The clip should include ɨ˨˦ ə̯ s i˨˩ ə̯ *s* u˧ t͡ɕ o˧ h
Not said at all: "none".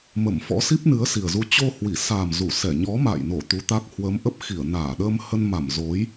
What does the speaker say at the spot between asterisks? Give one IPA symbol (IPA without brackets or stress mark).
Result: z